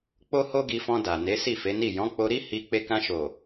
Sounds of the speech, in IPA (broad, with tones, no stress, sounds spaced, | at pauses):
k͡p o˦ h o˦ ɡ i˧ f ɔ̃˧ d a˨ n e˨˦ s i˦˨ f e˨˦ n i˦˨ j ɔ̃˨˦ k͡p o˧ ɾ i˦ h i˧ k͡p e˧ k ã˧ ʃ o˨